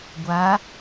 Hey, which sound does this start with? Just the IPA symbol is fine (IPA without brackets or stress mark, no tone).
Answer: ɡʷ